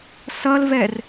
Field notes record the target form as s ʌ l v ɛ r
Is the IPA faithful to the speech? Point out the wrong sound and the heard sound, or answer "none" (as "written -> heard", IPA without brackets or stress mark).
none